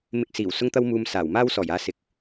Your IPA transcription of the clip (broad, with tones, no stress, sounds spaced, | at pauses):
m ɪ˧ k̚ s iː˨˩ w s ʊ˥ ŋ t̪ ɐ˥ w m uː˧ m s aː˨˩ w m aː˥ w s ɔː˨˩ j aː˧ s ɪ˨ k̚